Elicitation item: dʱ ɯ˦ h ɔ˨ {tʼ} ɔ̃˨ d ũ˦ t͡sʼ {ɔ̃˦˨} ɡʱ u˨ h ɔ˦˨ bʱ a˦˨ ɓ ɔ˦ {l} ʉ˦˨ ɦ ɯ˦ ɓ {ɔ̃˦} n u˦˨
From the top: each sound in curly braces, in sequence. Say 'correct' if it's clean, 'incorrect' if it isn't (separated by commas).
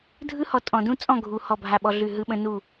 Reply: correct, correct, incorrect, incorrect